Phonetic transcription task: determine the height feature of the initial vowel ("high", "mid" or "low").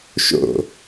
mid